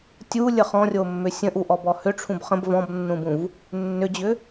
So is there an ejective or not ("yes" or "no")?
no